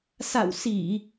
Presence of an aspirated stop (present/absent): absent